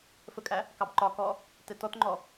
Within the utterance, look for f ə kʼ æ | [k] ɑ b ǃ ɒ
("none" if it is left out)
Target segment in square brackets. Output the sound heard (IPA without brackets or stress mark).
k